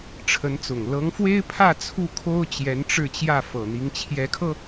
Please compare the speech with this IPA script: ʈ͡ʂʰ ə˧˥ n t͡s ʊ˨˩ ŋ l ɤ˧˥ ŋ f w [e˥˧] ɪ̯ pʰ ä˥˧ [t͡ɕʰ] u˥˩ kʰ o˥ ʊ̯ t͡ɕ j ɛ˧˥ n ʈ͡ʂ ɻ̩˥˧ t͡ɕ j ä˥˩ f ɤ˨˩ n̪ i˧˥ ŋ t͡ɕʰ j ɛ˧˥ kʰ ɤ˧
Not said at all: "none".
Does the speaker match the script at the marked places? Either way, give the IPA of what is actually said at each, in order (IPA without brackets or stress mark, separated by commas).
e˥, t͡sʰ